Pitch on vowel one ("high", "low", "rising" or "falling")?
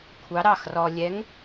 rising